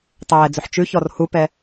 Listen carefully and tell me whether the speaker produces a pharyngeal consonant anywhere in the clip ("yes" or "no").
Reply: yes